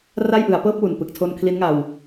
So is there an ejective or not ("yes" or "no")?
no